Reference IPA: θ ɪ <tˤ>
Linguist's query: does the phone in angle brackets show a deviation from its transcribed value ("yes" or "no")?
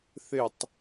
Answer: no